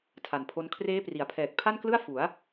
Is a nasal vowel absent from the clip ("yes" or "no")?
yes